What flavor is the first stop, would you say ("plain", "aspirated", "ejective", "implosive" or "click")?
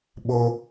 implosive